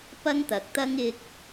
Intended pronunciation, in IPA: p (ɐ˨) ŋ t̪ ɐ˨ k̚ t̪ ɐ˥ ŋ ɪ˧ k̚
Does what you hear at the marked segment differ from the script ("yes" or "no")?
yes